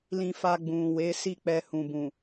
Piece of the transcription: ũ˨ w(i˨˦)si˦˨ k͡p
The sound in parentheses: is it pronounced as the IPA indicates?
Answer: no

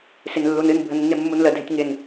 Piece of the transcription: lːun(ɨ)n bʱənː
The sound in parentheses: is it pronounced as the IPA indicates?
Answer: yes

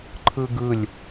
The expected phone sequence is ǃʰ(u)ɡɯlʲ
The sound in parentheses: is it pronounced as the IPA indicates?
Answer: no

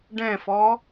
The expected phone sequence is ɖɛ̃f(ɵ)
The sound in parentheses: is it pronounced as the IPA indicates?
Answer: no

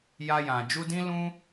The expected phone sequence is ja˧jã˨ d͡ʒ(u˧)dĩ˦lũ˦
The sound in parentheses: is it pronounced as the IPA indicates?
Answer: yes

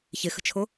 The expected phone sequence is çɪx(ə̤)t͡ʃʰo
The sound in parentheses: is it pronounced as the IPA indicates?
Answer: yes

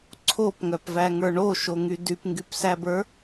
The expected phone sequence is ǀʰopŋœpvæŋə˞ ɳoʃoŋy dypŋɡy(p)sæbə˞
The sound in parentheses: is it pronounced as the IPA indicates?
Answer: yes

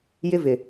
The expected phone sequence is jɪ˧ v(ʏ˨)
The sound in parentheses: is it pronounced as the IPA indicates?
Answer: no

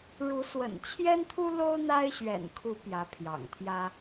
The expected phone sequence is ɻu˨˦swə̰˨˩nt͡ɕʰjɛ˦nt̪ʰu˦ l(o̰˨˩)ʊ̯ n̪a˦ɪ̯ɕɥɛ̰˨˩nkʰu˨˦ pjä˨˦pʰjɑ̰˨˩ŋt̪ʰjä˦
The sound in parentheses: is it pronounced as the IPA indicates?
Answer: no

